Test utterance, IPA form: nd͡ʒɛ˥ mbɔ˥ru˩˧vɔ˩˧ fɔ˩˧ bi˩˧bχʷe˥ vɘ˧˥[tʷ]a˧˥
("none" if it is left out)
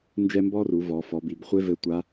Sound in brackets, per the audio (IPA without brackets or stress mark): tʷ